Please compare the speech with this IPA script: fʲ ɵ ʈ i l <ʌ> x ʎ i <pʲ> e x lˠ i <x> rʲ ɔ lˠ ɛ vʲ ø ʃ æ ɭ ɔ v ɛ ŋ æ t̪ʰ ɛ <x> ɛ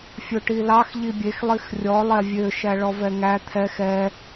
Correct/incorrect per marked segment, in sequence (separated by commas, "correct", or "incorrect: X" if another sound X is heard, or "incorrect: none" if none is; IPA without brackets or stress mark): incorrect: ɑ, incorrect: bʲ, correct, correct